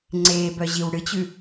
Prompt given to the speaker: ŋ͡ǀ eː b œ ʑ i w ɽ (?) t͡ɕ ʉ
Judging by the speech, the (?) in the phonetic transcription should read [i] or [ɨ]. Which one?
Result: ɨ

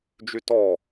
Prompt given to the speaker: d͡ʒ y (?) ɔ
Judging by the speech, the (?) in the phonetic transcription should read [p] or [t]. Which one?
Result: t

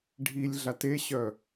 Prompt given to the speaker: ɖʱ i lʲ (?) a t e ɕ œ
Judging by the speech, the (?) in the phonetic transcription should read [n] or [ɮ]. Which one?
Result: ɮ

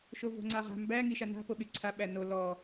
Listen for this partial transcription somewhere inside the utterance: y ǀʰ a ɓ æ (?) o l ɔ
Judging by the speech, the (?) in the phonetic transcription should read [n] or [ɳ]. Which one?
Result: n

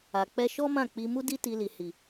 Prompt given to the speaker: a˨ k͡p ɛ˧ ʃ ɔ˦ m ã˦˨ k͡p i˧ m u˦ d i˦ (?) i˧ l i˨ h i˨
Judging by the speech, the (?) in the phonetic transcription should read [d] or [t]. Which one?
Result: t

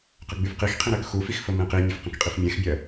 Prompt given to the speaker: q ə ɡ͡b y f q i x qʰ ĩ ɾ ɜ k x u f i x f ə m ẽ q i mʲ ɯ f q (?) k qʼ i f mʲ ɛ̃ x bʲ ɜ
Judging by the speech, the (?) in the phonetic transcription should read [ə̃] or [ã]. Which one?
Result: ə̃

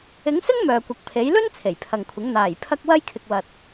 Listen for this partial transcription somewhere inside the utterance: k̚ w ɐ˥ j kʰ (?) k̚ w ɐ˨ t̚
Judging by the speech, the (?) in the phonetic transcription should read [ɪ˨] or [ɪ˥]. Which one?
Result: ɪ˨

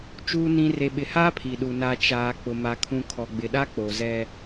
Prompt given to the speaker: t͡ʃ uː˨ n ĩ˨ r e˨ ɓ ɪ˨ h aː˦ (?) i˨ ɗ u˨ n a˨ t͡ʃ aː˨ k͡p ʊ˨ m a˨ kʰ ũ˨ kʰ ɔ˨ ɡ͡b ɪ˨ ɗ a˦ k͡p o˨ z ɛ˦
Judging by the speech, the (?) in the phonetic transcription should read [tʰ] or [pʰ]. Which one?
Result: pʰ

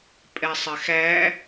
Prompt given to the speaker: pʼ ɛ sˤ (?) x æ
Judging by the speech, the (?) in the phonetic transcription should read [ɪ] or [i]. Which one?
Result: ɪ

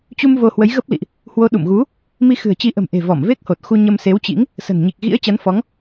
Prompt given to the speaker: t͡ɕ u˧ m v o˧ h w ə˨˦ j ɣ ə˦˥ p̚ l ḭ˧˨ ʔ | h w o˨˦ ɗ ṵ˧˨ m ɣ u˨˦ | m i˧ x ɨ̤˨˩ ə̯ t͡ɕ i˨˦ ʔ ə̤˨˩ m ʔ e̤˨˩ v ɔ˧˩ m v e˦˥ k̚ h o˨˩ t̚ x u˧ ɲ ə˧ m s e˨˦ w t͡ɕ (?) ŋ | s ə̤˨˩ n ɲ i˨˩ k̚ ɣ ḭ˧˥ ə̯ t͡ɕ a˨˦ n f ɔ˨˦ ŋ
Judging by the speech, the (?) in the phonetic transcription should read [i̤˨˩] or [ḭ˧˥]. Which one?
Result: ḭ˧˥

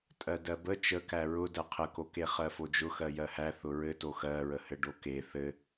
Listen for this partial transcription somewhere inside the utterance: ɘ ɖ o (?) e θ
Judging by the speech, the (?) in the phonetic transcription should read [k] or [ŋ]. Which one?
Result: k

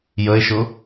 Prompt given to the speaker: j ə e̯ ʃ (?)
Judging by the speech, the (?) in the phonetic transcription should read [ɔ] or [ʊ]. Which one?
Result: ʊ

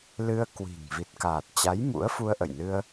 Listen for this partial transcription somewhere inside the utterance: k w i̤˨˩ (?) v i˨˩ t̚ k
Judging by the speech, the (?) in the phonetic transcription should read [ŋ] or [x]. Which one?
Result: ŋ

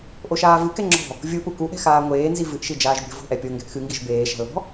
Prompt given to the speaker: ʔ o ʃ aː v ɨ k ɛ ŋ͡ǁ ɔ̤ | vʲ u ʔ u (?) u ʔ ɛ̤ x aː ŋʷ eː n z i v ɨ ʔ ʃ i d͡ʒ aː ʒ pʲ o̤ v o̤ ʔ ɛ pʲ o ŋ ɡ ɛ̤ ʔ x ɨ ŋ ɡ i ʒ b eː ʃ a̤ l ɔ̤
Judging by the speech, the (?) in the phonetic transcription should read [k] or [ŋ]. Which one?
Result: k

